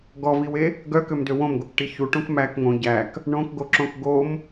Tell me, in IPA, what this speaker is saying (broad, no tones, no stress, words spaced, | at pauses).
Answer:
ɡɔviwe | ɡœkømdø wõmɡokʈi çuʈõk mæk ŋõ ɟæk | ɳõkɡoǁõk ɡom